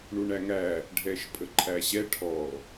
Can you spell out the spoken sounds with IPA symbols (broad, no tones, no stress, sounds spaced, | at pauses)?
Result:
ɳ u ɳ æ ŋ æ | ɖʱ ɛ ʃ pʼ ə ǃʰ æ ɕ ɛ ʈʰ ɔ